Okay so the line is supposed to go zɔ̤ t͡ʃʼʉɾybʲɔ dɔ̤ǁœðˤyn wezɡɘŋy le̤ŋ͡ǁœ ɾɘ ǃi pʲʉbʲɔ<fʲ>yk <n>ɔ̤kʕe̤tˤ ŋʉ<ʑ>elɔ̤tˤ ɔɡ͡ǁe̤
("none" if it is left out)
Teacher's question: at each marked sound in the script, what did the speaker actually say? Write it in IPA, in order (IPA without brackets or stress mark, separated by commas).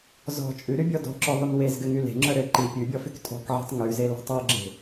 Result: f, tʼ, z